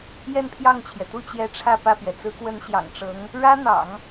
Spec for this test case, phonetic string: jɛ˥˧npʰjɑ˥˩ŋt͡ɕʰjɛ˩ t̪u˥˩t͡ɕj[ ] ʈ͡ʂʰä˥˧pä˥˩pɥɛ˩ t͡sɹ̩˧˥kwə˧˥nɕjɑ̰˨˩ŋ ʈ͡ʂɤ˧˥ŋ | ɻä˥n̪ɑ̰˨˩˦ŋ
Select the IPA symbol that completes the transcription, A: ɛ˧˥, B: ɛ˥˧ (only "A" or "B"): A